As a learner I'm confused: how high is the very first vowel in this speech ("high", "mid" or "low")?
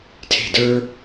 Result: mid